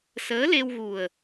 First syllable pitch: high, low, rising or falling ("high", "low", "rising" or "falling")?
rising